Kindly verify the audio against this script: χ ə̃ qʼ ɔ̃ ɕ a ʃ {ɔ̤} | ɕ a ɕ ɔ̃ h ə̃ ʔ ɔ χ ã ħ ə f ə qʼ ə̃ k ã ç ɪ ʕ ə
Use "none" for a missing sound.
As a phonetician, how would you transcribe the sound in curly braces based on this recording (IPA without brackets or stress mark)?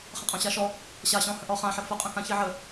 ɔ